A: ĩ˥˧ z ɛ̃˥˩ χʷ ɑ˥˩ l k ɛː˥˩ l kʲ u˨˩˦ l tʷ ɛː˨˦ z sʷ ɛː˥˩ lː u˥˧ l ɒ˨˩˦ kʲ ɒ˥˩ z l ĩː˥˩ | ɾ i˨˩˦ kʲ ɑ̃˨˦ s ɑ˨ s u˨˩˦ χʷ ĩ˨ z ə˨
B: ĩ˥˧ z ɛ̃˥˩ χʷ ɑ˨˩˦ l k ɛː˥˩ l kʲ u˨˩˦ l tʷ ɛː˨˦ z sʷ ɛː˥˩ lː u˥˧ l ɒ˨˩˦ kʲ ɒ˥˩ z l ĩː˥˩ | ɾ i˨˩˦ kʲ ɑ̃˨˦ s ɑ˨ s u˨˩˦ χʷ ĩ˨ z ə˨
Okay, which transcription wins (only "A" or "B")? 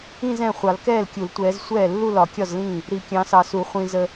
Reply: B